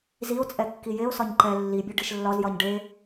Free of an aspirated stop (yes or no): yes